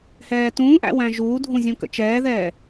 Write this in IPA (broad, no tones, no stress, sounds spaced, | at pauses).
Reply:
h ɛː t ũː ʔ æ̰ w æ̃ ʒ uː dʱ ũ zʲ ũ k ə̰ t͡ʃ ɛː ð ɛː